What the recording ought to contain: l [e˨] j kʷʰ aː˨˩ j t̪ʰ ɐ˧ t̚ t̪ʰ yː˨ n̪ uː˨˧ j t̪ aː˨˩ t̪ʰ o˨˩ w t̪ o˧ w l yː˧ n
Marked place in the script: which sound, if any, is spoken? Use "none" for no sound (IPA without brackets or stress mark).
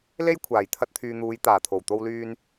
e˥